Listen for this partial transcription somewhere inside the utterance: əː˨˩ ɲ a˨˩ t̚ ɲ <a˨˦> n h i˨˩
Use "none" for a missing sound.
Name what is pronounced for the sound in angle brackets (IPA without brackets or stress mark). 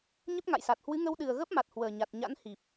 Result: a̰˧˥